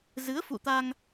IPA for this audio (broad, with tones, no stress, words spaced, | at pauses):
zɨ˨˦ə̯fṵ˧˨t̪a˧ŋ